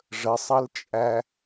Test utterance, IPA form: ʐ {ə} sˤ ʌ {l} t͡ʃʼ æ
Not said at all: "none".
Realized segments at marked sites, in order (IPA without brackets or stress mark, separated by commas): ə, l